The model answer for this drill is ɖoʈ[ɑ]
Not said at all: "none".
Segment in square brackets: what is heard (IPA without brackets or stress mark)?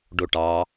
ɑ